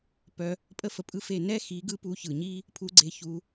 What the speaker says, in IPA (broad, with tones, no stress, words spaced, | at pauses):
pœ˧ | pʼə˧fə˨ pʼɯ˦fe˦˨ nɛ˦xi˨˦ɡɯ˧ pu˧çɯ˨ɲi˦ | pʰu˧ɡ͡ǀe˧çu˧